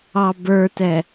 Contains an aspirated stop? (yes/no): no